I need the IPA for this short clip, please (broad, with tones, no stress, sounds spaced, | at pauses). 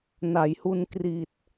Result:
n a˩˦ j h u˧ n k r i˨˩ t̚